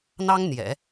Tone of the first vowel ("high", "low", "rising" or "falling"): high